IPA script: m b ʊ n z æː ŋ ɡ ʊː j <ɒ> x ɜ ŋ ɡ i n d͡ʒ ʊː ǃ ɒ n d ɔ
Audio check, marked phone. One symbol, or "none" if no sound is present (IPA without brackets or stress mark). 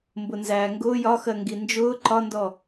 ɒ